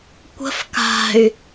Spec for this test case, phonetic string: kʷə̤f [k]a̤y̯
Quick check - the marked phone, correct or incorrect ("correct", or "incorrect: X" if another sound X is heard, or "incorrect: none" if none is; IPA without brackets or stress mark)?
correct